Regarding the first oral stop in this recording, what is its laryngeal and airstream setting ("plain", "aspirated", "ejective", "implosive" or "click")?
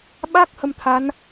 implosive